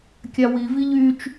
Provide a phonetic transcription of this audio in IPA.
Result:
kʲ a w i v i ʎ y t͡ʃ

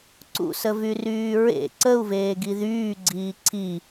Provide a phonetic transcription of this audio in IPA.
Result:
ǀ ṵ s ə v y r yː ɹ ḛ ǀ ə u̯ v eː ɡ i ð yː ɡ͡ǀ iː ǀʰ i

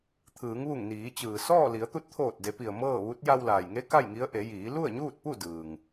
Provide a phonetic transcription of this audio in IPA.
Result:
t̪ʰ ɯː˩˧ ŋ ʋ u˧˩ ŋ n iː˩˧ t͡ɕ ɯː˩ s ɔː˥˨ l i˩˧ ə̯ t̪ u˧ t̚ t̪ʰ oː˧˩ t̚ d e˩˧ p i˩ ə̯ m ɤː˥˨ ʋ u˧˥ t̚ j a˧ w l aː˩ j ŋ e˧˥ k a˥˨ j ŋ i˧˥ ə̯ ʔ e˩˧ j iː˩˧ l u˥˨ ə̯ ɲ uː˥˨ t̚ p u˥˨ d ɯː˩ ŋ

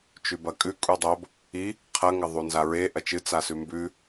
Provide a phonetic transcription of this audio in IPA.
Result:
t͡ʃ ʉ b ɐ kʼ ʉ kʼ u dˤ o b | i | qʰ ɐ ŋ ɐ ðˤ u n z a ɹ e ʔ ɐ t͡ʃ ɨ t͡s a s ʉ m b ʉ

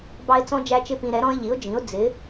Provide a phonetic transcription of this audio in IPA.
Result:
b ɑ˥ ɪ̯ t͡s ɔ̃˥ d͡ʒ æ˥ t͡ʃ ɪ˥ p ĩ˧ ɾ ɛ˩˥ ɾ ɔ̃˥ ɪ̯ ʎ i˩˥ ʊ̯ d͡ʒ ĩ˩˥ ʊ̯ d͡z ɪ˩˥

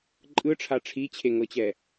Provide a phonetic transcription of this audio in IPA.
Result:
ǃʼ ɯ ʈ͡ʂʰ a ʈ͡ʂʰ i t͡ɕʰ e ŋ ɤ t͡ɕ ɛ

